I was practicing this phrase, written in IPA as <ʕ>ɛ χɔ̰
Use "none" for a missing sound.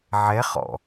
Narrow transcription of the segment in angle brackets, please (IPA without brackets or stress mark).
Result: ʕ